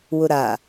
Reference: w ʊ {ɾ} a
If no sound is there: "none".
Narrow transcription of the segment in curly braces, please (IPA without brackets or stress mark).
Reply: ɾ